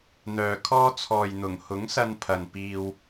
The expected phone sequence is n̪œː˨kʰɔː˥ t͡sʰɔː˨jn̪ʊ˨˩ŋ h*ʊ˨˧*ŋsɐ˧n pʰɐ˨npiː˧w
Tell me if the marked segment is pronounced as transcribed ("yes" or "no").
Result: no